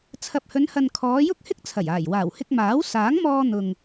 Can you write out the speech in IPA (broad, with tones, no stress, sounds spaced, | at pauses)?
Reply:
t͡sʰ ɐ˨ p̚ h ɵ˨˧ n h ɐ˨ n kʰ ɔː˨˧ j ʊ˥ k̚ h ɪ˥ k̚ t͡sʰ ɐ˨˩ j aː˨˩ j w aː˨˩ w h ɪ˧ k̚ m aː˨˥ w s aː˨˥ ŋ m ɔː˧ n̪ ʊ˨ ŋ